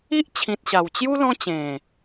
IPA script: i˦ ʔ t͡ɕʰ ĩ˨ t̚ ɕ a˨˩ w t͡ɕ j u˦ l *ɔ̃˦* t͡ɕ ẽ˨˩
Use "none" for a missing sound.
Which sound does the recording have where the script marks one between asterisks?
ɔ̃˦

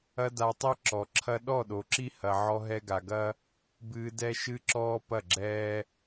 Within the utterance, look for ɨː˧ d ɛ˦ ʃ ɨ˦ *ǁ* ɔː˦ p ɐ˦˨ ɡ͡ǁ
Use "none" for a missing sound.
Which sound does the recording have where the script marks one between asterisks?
ǁ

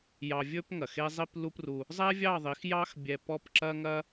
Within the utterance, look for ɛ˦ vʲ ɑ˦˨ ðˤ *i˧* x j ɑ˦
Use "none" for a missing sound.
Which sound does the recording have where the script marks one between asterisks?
i˨˦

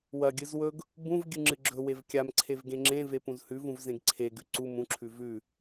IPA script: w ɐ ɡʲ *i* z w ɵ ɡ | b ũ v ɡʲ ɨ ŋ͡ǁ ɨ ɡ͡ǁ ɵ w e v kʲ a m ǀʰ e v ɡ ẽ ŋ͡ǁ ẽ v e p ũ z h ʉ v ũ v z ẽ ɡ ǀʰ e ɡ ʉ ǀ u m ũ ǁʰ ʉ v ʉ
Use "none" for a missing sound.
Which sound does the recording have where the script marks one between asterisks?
ɨ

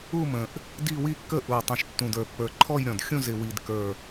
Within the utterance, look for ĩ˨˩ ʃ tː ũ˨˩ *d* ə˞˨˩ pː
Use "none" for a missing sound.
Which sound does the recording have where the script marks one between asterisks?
d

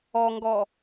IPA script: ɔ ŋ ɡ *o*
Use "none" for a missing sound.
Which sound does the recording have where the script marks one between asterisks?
ɔ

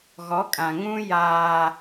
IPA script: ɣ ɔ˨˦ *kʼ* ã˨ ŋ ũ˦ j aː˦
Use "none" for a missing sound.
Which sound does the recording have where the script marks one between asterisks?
kʼ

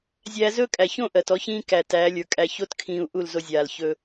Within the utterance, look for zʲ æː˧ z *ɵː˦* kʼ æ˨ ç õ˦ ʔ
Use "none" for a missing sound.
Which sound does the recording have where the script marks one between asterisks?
ɵː˦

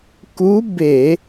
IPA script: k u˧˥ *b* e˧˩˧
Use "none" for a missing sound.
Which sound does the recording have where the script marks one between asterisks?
b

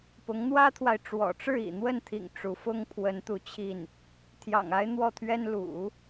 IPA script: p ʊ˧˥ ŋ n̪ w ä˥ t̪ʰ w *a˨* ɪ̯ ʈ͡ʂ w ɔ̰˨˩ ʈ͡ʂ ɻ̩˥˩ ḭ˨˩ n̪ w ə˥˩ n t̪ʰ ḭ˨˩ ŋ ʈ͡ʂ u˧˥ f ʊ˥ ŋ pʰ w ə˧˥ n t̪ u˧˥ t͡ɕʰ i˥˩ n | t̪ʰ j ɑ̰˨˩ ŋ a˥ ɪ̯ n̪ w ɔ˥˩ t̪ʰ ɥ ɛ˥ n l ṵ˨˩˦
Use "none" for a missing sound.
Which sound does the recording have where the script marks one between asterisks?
a˨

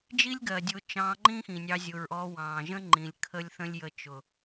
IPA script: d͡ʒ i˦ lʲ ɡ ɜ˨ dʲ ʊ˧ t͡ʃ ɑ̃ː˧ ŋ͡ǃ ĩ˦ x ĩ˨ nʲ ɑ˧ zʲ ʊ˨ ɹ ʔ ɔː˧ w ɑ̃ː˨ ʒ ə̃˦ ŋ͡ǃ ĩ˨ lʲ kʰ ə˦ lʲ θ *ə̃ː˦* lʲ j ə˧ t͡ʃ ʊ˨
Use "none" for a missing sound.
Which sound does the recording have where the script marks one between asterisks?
ə̃˦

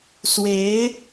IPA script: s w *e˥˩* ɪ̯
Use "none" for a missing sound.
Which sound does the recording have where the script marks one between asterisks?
e˧˥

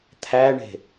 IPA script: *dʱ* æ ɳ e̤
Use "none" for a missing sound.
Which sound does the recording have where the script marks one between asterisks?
t̪ʰ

